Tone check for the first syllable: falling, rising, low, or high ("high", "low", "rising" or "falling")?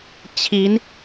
rising